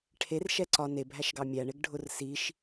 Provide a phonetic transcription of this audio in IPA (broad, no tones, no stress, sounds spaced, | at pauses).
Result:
ʈʰ e r ʃ ɛ ǀ ɒ n e bʱ æ ʃ ɡ ɑ mʲ æ ɳ e ɡ ɖʱ ʊ r s i ʃ